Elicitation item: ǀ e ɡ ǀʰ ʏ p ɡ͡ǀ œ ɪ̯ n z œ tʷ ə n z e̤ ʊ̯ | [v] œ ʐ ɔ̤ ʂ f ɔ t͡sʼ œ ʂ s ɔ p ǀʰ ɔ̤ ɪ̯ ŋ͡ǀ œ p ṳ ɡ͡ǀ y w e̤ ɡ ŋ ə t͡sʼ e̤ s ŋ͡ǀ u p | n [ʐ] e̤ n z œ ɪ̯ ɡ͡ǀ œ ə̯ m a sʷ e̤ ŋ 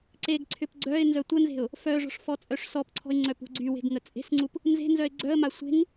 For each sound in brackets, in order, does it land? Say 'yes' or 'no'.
no, no

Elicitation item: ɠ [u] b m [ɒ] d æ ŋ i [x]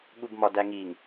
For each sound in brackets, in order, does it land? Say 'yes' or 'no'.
yes, yes, no

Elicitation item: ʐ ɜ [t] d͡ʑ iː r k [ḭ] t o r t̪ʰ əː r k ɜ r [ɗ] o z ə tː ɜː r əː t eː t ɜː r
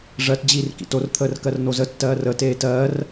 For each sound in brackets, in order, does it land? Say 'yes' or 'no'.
yes, yes, no

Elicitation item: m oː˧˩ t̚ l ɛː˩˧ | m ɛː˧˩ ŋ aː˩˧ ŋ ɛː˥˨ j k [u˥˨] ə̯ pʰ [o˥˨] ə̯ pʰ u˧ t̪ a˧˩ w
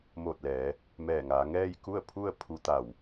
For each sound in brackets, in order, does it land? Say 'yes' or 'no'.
yes, no

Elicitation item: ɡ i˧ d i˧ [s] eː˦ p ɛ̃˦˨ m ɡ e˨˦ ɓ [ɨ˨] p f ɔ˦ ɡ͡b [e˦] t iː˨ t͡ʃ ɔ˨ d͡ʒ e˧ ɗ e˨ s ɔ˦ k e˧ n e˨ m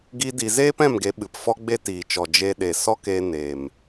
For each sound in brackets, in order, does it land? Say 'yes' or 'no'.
no, yes, yes

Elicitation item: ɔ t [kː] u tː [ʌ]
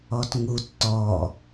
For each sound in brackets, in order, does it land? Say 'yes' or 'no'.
no, no

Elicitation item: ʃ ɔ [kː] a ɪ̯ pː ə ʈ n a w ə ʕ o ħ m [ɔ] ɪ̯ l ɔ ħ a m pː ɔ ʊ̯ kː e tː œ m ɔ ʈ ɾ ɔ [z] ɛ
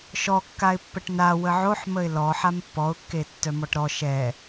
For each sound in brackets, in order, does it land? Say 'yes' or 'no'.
yes, no, no

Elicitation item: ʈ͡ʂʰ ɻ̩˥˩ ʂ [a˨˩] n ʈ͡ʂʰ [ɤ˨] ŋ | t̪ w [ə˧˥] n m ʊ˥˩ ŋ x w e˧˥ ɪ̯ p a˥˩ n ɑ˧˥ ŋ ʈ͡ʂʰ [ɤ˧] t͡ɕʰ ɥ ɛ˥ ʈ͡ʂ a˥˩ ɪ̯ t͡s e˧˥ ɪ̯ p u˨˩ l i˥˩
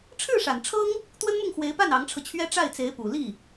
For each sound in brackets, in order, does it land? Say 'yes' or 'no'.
yes, no, no, yes

